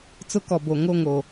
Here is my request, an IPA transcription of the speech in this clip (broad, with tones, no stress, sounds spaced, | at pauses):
t͡s ʊ˦ k ɔ˨ b o˨ ŋ o˦˨ ŋ o˨